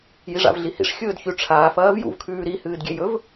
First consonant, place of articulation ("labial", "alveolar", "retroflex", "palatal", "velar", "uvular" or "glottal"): palatal